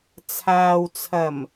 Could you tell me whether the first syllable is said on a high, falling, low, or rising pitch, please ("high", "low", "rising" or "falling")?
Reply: low